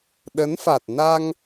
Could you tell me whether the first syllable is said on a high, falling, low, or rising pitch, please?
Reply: rising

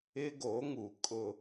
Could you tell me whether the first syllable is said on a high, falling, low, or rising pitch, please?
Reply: high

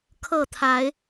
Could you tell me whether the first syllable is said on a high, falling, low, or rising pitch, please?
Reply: falling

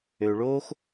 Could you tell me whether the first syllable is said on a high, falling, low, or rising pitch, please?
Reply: low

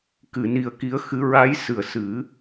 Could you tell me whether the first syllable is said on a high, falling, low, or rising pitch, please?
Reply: low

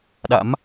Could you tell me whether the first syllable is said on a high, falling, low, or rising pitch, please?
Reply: rising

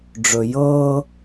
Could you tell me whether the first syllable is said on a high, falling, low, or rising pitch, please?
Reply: low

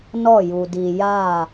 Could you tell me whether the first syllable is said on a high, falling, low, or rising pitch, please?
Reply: falling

